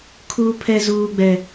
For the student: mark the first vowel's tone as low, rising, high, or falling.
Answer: high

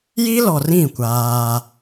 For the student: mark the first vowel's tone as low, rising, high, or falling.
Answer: high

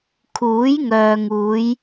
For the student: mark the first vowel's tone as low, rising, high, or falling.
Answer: rising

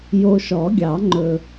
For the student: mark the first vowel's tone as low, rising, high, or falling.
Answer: low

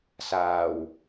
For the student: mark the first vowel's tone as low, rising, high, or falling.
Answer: low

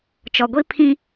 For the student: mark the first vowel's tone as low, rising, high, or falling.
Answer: low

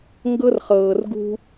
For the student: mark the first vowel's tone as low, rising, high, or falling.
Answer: high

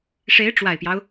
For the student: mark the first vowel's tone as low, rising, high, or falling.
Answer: rising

